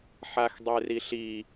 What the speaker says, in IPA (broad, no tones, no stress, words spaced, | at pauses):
ħaxdˤeriɬi